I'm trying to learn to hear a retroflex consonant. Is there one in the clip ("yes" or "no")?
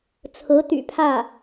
no